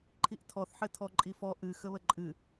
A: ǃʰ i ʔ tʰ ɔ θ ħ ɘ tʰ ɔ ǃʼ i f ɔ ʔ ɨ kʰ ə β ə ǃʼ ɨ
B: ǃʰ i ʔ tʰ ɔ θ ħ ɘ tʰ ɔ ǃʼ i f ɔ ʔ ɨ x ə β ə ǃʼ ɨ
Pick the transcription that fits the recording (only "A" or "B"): B